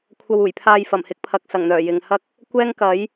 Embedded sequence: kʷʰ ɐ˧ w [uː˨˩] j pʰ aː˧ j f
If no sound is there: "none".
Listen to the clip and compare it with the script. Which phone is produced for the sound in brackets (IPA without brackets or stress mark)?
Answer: uː˨˩